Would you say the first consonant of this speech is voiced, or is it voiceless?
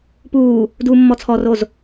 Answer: voiceless